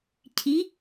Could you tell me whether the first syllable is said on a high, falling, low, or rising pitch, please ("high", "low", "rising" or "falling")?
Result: rising